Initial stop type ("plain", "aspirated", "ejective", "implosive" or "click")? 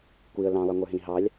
plain